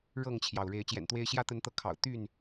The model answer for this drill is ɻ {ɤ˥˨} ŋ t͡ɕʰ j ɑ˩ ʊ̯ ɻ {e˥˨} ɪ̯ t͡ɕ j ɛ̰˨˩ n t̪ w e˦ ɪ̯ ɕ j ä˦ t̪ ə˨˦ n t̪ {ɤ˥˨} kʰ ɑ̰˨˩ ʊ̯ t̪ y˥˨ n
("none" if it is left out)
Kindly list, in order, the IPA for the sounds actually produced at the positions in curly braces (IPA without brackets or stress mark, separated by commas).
ɤ˥˨, e˨˦, ɤ˨˦